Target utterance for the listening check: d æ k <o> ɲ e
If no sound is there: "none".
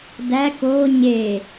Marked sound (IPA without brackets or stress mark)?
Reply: o